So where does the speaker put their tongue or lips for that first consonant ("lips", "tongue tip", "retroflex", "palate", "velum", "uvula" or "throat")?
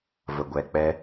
lips